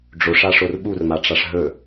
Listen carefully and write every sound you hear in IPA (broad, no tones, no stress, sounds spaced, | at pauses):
ɖ͡ʐ o ʂ a ʂ o r ɓ u r m a ʈ͡ʂ a ʂ ɦ ɵ